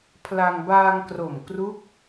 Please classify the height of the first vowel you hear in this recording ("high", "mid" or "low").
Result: low